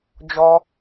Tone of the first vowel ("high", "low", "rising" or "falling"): high